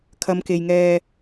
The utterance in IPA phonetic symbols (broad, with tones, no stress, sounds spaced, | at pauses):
kʰ ɐ˨˧ m k e˨ j ŋ ɛː˧